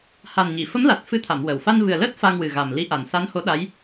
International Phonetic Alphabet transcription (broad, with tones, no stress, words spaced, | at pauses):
ha˨˩nɲi˨˩˨ fə˧˥mla˨˩t̚ fɨ˧t̪ʰa˨˩˨m wə˨˩w fa˧nvɨ˨˩ə̯ləː˦˥t̚ fa˧ŋwɨ˨˩ɣa˨˩m li˧˥ʔa˨˩n sa˧˥nho˧˥ɗa˧˥j